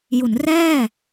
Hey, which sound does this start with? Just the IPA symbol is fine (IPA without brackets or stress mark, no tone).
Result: j